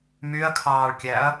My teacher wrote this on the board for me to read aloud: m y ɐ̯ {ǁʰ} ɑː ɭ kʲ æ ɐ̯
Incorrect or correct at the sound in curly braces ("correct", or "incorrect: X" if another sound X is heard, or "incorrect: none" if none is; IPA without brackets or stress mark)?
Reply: incorrect: kʰ